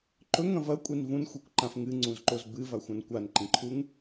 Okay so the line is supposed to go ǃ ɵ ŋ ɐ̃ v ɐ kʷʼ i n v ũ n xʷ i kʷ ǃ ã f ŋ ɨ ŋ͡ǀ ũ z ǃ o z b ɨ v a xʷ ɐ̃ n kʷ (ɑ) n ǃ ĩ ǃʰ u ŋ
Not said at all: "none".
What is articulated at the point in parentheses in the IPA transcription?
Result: a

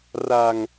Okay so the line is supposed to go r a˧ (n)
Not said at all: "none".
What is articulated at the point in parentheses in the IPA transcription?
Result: ŋ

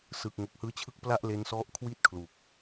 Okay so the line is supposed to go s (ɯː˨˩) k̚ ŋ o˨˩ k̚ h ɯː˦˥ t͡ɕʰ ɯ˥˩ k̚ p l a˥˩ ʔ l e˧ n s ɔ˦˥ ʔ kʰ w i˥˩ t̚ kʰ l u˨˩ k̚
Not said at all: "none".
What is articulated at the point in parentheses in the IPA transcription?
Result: ɯː˨˩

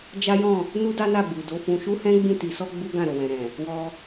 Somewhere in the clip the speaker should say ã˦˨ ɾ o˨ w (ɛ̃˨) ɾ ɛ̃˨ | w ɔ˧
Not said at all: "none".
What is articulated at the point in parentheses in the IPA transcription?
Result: ɛ̃˨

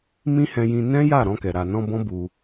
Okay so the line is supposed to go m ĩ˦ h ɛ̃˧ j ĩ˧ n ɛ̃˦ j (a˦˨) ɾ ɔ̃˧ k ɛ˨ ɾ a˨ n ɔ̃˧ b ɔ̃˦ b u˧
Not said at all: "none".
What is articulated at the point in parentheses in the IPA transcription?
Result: a˦˨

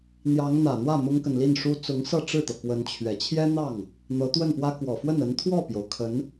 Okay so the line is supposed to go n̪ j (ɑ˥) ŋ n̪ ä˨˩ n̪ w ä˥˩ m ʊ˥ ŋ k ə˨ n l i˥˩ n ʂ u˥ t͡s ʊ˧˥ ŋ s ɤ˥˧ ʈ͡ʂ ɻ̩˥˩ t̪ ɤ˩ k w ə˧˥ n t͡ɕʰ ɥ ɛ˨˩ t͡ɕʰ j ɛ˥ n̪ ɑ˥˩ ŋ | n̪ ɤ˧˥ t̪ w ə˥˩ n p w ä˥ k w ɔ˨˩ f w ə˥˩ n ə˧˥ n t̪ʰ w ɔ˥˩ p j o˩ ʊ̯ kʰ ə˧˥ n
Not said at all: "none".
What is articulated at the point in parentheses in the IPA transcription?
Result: ɑ˧˥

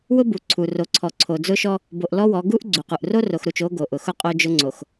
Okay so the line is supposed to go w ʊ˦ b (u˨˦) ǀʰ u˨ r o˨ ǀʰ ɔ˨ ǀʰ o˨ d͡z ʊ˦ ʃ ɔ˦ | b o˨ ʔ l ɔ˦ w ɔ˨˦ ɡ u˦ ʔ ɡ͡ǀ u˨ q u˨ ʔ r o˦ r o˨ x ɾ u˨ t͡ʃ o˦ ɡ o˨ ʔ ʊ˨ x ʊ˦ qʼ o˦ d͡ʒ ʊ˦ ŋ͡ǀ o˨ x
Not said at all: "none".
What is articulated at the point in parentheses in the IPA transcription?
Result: u˨˦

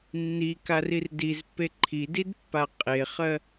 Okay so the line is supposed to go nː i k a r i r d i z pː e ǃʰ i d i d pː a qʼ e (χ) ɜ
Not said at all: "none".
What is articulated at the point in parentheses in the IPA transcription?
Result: χ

